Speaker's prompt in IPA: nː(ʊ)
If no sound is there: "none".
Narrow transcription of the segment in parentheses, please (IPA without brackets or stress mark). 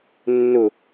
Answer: ʊ